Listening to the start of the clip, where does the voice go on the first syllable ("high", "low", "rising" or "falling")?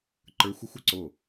rising